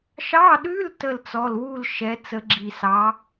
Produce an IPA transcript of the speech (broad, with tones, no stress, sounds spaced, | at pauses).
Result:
ʃ ɑ˧˥˧ ɗ ʉ˧˥˧ l t ə˥˧ l t͡s ɔ˧˥˧ l w u˥˧ l ʃ ɛ˨˦ t͡s ə˨˦ ɡ͡ǁ i˨ s ɑ˨˦